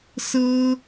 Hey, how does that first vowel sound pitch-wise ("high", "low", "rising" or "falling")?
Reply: high